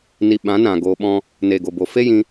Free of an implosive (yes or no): no